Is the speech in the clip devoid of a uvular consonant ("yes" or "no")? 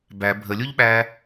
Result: yes